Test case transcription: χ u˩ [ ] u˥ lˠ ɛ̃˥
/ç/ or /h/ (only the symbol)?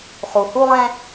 h